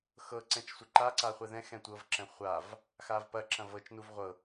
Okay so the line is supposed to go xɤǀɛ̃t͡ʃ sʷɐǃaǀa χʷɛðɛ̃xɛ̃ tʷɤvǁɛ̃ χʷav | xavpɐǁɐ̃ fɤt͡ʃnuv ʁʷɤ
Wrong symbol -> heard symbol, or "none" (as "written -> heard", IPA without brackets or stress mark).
f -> v